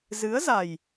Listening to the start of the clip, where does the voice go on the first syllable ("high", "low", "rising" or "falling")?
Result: rising